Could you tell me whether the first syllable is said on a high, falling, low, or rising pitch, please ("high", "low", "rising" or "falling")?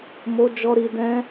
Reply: high